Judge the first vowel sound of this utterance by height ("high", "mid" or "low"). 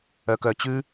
mid